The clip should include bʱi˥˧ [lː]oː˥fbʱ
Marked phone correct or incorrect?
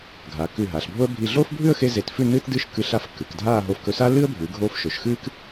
incorrect